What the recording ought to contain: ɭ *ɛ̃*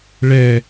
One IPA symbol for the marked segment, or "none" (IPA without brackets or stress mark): ɛ